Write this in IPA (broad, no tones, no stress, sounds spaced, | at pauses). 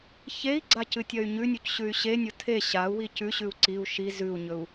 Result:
ç e i̯ ɡ͡ǀ a c ɨ tʲ ɐ y̯ ɲ ʉ nʲ u c ɕ ʉ y̯ ɕ e nʲ o tʰ e ɕ a u̯ w i c ʉ ɕ ʉ u̯ ǀ i u̯ ʃ i z ʉ u̯ ɲ ɵ u̯